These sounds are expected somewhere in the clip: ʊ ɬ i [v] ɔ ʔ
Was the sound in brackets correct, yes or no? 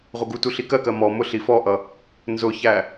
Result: no